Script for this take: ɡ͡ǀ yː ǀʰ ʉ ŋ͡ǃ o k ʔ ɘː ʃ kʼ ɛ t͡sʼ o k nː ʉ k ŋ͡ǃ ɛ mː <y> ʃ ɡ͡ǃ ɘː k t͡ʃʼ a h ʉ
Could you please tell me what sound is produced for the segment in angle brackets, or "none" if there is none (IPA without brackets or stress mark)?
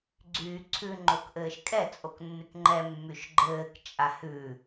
y